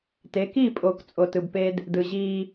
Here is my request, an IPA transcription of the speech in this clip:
t e˨˦ k i˦˨ pʼ o˨ k t͡sʼ o˨ t ɯ˨ b p e˦ d | d ɯ˨ ʑ iː˦

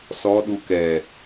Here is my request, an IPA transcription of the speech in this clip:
s ɔ ɗ u k ɛ

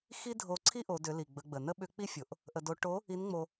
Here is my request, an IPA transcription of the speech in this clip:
x i˥ dʱ o˧ ǀʰ i˥ ʔ o˩˧ d ʏ˩˧ l i˩ ɡ͡b ə˩˧ ɡ͡b ə˩ n ə˥ ɓ ʏ˧˥ k͡p i˥ fʲ o˩˧ ʔ | ʔ ə˧ d o˧˥ ʈ o˧˥ | i˧˥ n ŋ͡m o˧

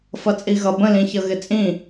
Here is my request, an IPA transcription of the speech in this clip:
f ʌ t͡sʼ i ɣ ʌ b ə̃ l ĩ ç ʌ ɣ ɪ t͡sʼ ĩ

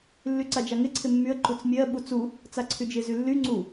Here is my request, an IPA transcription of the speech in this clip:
lː y ǀ a d͡ʒ a ŋ ɪ ǀʰ ɪ mː y ə̯ ǃ u t͡s mʲ ɜ ɓ u t͡s u | t͡s a ǀʰ y d͡ʒ ɪ z y lː y ŋ͡ǀ u

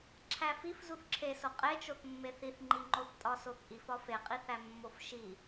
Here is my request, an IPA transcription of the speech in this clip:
ǁʰ æ f i f z u θ ǁʰ e s o qʼ e t͡ʃ o θ mː e θ i θ ŋ͡ǃ i ŋ͡ǃ o θ tʼ ɒ s o θ ʔ i f ɒ f e qʼ i θ æ mː o f ʃ i

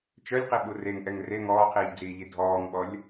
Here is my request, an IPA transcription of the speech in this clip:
t͡ʃ œ lʲ q i ɓ u r e ŋ ʔ ɛ ŋ r e ŋ ɔː qʰ iː ʎ d͡z iː ʎ i dʱ ɔː ŋ ɓ ɔ lʲ

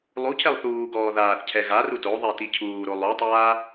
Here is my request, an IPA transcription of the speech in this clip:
lˠ u cʰ ɛ lˠ θ uː ɡ ɔː ð aː θ cʰ ɛ ɣ a r u t o ðˤ ɛ t i cʰ uː ɾ o lˠ u tˤ aː

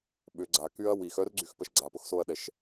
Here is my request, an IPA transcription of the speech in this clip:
ɓ ʏ ɡ͡ǀ a k y ɐ̯ w i x œ r ɡ͡ǀ y x p ə ʃ ɡ͡ǀ a p ʊ x s o ɐ̯ ɗ ɛ ʃ

